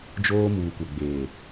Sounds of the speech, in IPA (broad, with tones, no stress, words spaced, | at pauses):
d͡ʒoː˦muː˨kʷɛ˨ ɡ͡beː˨